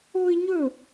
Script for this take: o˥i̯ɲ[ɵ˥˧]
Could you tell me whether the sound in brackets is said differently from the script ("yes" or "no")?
no